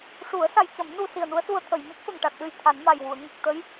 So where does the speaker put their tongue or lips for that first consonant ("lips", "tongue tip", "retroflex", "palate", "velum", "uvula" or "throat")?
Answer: retroflex